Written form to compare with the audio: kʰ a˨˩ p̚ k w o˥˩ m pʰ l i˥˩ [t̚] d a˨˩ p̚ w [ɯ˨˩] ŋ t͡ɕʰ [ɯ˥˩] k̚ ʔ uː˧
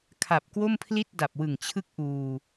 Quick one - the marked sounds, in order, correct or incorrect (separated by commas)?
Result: correct, correct, incorrect